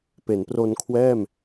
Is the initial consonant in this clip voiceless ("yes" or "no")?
yes